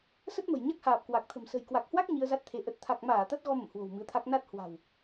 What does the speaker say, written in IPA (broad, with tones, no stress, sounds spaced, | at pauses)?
s ə˦˥ t̚ m ə̤˨˩ j ɲ a˦˥ k̚ h aː˨˩ p̚ k w a˨˩ k̚ t̪ʰ ə̤˨˩ m s ə̤˨˩ j k w a˨˩ k̚ h w a˦˥ k̚ ɲ i˧ ə̯ z a˦˥ t̚ t̪ʰ e˨˦ ʔ ə˨˩ t̚ t̪ʰ a˨˩ k̚ m aː˧˩ t̪ a˦˥ t̚ ɣ ɔ˧ m ə̰˧˨ m h w o̤˨˩ w m ɨ˨˦ ə̯ t̪ʰ a˦˥ k̚ n a˦˥ t̚ h w a̤˨˩ w